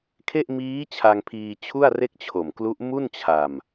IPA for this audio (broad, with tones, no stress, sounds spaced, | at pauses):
kʰ e˥˩ ʔ m iː˦˥ t͡ɕʰ a˧ ŋ pʰ iː˧ t͡ɕʰ u˥˩ a̯ r e˥˩ k̚ t͡ɕʰ o˨˩ m k l u˦˥ ʔ m u˥˩ n t͡ɕʰ a˧ m